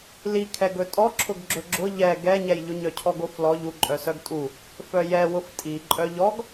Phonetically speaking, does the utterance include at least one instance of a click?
yes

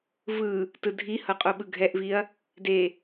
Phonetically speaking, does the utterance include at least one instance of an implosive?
yes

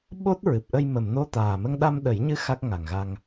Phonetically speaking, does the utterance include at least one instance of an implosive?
yes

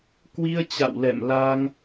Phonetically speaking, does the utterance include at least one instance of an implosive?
no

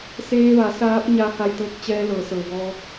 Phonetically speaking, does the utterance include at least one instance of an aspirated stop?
no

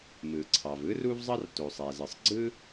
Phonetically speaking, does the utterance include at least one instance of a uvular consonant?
no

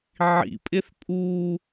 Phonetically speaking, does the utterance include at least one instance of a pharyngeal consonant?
yes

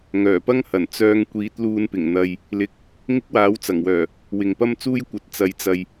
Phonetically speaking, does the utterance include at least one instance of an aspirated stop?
no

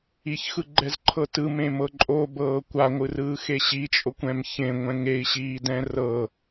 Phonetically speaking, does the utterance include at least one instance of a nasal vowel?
yes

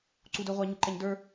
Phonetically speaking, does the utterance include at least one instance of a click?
yes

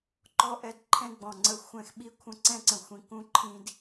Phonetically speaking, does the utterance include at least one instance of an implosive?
yes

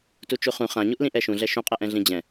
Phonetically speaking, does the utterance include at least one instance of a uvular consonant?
yes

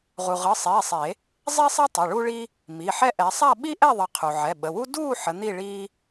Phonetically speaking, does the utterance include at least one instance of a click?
no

